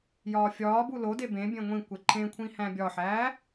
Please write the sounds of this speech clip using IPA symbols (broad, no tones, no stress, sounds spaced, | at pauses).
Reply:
j ɒː fʲ ɒː b u l o d e b ẽ bʲ ẽ ŋʷ ĩ kʷ e ǃʰ ẽ kʷʰ ĩ h æ̃ bʲ ɒ ħ æː